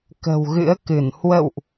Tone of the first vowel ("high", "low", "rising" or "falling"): low